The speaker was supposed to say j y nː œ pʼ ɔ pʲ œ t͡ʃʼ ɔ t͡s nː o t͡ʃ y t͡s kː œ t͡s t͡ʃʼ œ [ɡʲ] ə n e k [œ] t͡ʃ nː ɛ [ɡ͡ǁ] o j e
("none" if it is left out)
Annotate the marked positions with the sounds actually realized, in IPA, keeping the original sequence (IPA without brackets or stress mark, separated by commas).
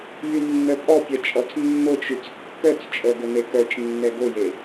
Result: ɡ, œ, ɡ